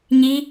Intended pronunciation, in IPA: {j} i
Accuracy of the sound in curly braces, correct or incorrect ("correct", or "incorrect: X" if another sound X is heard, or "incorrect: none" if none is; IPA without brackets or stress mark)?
incorrect: ɲ